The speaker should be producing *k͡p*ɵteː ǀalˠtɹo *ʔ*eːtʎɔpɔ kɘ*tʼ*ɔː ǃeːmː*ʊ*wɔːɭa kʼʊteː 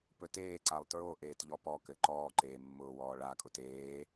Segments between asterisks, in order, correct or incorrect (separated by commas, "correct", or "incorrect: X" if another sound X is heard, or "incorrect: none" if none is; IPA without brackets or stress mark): incorrect: p, correct, incorrect: ǃ, incorrect: ʊː